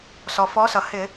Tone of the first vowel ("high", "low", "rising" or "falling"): low